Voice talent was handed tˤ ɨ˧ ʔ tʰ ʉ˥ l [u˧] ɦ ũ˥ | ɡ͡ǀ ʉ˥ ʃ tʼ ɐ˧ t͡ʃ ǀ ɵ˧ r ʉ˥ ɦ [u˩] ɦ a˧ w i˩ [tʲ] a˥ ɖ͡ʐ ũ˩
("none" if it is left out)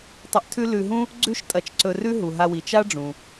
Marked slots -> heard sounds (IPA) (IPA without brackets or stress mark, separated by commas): ʉ˧, u˩, t͡ʃ